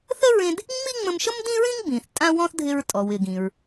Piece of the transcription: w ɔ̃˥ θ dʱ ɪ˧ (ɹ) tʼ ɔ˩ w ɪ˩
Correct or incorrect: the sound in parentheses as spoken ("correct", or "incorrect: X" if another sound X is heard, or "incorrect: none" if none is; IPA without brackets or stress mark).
correct